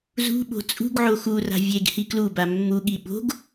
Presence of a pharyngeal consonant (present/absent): present